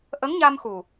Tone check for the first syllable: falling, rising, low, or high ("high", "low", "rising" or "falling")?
rising